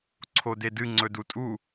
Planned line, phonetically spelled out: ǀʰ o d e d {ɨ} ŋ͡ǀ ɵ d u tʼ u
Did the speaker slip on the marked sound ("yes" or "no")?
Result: no